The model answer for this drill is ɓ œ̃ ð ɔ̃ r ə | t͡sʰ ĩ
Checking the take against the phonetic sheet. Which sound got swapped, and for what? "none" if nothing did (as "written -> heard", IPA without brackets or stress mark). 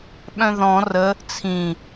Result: none